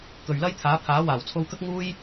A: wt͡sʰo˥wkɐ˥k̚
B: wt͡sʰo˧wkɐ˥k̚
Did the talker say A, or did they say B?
B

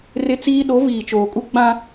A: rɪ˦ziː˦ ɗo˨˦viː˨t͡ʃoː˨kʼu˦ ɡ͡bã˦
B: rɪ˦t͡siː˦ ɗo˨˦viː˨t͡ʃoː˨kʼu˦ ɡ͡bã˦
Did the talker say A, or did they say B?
B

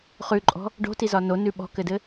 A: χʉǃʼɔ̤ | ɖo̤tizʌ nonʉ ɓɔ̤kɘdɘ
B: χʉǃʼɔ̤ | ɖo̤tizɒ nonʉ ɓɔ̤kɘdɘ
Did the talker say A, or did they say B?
B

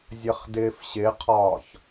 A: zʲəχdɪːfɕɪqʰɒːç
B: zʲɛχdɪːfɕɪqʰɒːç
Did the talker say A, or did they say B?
A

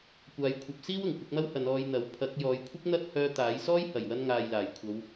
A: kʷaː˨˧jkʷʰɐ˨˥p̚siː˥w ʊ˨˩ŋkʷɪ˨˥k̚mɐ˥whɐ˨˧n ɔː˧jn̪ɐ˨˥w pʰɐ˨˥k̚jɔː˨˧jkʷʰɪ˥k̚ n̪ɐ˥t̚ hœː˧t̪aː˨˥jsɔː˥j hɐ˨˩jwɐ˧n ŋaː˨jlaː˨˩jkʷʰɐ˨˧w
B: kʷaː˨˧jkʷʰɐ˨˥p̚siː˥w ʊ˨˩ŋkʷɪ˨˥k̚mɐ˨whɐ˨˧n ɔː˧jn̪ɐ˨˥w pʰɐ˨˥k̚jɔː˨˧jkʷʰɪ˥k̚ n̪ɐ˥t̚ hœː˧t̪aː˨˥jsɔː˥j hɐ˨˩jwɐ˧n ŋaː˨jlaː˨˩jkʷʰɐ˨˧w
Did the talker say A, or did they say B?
A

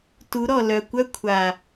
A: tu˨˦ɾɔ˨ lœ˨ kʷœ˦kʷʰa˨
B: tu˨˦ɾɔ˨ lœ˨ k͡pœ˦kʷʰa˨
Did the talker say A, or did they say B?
A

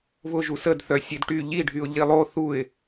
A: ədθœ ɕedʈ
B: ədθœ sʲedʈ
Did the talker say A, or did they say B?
B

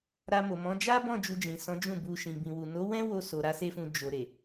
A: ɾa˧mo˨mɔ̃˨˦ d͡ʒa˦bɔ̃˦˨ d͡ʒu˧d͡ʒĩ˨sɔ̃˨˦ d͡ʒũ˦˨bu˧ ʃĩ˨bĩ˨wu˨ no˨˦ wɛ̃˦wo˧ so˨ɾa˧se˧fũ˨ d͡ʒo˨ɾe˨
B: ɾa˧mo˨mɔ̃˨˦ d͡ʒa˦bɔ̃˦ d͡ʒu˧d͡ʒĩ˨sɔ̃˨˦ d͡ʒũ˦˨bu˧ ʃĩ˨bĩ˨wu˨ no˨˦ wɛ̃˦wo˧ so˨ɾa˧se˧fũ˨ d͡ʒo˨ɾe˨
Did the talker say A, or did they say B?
A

